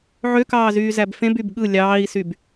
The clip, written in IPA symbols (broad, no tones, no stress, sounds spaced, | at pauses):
ʕ ø k ɑː z yː z æ b f ẽ b y b ɠ ɯ lʲ ɑː i̯ s y b